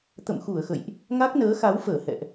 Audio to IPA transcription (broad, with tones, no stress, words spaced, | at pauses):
t̪ə̰˧˨mxu˧˩ə̯xə̰˧˨jʔ | ŋa˦˥k̚nəː˨˦xa˨˦wfəː˧˩ hɛ̰˧˨ʔ